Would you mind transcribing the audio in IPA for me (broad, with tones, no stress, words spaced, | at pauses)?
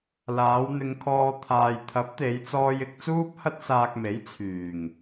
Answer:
laː˨˧w n̪ɪ˧ŋkʰɔː˧ t̪ʰaː˨jt̪ʰɐ˨˥p̚t̪e˨˧j t͡sɔː˧jɪ˧k̚ t͡suː˥p̚hɐ˥t̚saː˧k̚me˨˥j t͡sʰyː˨˩ŋ